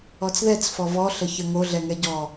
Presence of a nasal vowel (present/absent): absent